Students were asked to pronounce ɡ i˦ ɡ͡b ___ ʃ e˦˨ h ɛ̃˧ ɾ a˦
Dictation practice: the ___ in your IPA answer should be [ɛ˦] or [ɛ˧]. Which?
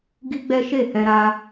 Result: ɛ˦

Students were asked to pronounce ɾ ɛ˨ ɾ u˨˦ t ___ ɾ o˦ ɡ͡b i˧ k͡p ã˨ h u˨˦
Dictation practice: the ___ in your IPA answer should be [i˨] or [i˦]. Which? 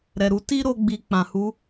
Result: i˦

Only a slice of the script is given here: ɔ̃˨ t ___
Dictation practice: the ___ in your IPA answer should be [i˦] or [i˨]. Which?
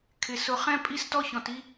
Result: i˦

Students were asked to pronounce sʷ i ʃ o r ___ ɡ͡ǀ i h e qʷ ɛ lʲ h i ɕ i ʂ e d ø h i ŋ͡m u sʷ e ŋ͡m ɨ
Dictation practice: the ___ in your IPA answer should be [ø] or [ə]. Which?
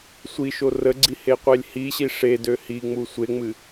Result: ə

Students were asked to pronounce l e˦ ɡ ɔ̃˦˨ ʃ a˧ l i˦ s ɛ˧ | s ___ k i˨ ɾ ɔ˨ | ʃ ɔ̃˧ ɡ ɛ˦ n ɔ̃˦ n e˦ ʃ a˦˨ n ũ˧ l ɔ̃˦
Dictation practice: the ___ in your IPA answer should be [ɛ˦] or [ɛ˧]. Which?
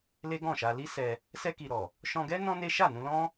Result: ɛ˧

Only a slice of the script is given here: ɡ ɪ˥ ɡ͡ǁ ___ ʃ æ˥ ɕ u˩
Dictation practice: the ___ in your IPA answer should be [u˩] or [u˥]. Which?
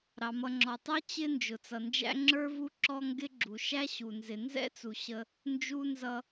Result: u˩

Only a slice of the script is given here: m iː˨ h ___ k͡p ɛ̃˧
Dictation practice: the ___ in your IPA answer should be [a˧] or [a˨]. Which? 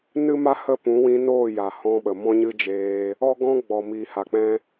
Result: a˨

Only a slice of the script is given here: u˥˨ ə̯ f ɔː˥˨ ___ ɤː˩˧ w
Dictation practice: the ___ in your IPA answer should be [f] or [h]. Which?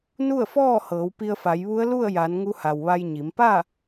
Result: h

